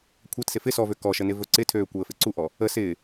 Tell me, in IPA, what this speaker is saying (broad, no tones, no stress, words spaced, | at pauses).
kʷʰɤtsɪ fɪ sɔvø kɔʃə nɪvɵǀɪtʰøː kʷəːfɪǀuʔɔ | ə sɪː